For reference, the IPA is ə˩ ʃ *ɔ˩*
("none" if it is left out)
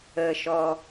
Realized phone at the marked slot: ɔ˩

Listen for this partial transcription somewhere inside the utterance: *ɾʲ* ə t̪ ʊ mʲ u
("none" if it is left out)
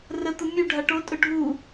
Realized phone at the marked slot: r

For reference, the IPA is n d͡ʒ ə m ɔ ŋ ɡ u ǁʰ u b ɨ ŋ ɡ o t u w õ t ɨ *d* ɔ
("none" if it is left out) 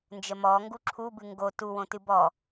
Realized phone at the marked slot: b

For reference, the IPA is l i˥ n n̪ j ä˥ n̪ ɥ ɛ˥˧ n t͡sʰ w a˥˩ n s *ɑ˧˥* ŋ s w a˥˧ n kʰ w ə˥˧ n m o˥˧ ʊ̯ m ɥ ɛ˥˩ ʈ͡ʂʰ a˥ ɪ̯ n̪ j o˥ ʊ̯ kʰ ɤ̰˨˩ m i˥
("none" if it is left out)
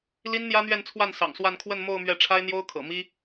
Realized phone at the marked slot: ɑ̰˨˩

